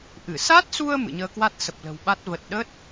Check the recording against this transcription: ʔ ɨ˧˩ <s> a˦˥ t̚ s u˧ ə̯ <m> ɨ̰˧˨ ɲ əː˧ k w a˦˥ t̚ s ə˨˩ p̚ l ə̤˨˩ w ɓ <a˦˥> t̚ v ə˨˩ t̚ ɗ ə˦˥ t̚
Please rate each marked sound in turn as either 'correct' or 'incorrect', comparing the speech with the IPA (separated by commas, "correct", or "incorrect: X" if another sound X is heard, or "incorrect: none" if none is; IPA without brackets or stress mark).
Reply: correct, correct, correct